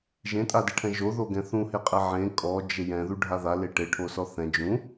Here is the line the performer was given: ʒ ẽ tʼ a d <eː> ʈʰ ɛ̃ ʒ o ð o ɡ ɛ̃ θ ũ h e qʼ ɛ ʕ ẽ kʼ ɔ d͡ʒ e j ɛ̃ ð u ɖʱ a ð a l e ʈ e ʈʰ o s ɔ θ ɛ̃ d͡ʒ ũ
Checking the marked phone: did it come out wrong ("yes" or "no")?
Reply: yes